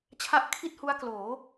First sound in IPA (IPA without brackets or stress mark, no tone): t͡ɕʰ